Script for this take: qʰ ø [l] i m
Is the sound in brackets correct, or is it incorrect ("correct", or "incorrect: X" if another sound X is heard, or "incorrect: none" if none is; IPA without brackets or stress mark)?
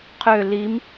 correct